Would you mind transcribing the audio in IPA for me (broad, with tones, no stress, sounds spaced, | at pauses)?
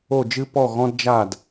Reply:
o˥˩ d͡ʒ ɨ˥ p ɔ˥˩ ɣ ɔ̃˥ d d͡ʒ a˥˩ d